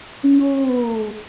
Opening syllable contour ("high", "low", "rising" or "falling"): falling